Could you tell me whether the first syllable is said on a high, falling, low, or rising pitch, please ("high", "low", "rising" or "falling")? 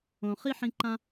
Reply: low